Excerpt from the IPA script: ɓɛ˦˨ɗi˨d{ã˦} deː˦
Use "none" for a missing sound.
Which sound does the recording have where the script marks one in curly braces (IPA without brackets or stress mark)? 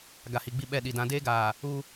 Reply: ã˨˦